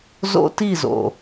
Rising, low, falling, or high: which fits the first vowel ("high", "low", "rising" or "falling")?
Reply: high